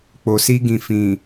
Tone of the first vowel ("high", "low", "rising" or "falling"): low